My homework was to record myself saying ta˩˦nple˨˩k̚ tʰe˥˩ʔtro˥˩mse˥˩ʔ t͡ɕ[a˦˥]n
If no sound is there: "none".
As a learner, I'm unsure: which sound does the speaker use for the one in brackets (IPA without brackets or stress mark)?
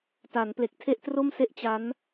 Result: a˦˥